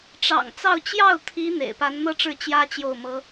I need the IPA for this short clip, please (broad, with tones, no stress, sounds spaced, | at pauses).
ʈ͡ʂ ɑ̰˨˩ ŋ t͡s ɑ˥˧ ʊ̯ t͡ɕ j ɑ˥˩ ʊ̯ t̪ʰ i˧˥ n̪ ḛ˨˩ ɪ̯ p a˧˥ n n̪ ɤ˥ ʈ͡ʂ ɻ̩˥˩ t͡ɕ j ä˥ t͡ɕ j o˥˩ ʊ̯ m ɤ˥